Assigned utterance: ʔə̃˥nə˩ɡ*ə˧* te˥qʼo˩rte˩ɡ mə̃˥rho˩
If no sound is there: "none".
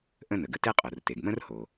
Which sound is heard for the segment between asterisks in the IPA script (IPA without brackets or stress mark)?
ə˧